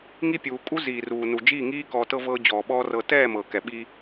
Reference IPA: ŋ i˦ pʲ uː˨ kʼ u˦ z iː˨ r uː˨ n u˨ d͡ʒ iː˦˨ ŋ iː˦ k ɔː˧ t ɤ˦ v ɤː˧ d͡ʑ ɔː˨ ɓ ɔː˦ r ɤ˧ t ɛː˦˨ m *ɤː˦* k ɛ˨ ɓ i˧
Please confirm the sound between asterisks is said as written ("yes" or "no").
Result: no